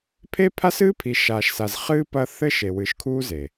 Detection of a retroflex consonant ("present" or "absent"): absent